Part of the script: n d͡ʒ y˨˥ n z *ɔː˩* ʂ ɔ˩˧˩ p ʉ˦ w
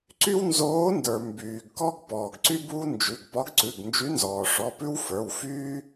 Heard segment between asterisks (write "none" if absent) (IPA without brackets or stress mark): ɔː˩